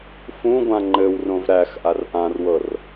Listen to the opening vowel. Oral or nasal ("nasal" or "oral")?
nasal